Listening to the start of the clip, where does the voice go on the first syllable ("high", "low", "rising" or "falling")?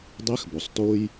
rising